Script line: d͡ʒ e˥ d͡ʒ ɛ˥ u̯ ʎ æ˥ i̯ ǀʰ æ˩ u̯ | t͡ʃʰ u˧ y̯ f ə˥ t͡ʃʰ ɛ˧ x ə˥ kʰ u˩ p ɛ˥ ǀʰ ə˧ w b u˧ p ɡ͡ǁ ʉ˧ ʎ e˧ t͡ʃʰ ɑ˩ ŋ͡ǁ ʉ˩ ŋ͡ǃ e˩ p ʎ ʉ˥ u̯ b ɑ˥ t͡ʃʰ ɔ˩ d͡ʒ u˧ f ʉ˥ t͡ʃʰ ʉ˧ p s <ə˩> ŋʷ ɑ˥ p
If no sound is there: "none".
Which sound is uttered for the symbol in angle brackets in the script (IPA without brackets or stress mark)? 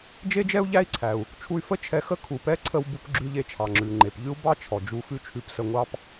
ə˧